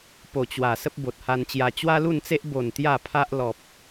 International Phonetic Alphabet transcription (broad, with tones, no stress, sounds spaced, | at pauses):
p o˨˩ t͡ɕ w a˨˩ s ə˦ p̚ b o˨ t̚ h a˧ n t͡ɕ j a˧ t͡ɕ w a˦ l u˥˧ n t͡s e˦ ʔ b o˨˩ n t̪ j a˥˧ pʰ a˦ ʔ l ɔ˨ p̚